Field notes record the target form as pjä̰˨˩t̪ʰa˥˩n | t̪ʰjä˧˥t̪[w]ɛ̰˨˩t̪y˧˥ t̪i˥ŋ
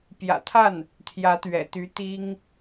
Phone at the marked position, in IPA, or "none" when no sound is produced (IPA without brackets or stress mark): ɥ